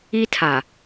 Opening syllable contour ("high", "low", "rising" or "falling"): high